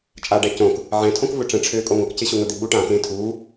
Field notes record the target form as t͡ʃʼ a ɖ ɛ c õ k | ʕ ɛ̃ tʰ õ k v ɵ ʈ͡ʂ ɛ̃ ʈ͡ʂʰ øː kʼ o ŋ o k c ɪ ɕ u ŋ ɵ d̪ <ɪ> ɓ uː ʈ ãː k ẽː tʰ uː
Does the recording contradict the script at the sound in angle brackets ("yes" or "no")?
no